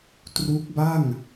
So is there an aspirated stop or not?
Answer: no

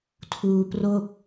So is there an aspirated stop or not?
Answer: yes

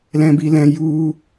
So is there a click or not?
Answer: no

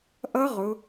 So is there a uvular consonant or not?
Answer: yes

